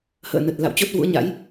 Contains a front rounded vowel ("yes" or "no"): no